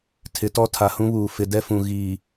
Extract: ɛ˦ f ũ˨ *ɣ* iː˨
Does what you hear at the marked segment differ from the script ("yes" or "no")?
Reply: no